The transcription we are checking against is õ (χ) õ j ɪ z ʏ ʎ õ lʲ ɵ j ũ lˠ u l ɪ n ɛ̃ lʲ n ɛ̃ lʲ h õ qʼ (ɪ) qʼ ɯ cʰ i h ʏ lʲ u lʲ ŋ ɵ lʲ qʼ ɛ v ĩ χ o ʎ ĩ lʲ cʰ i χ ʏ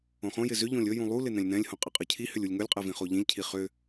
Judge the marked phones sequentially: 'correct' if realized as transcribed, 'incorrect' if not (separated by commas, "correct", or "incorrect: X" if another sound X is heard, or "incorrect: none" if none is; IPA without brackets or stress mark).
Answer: correct, correct